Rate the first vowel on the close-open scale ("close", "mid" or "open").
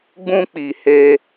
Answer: close